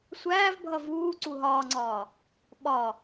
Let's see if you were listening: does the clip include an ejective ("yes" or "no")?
no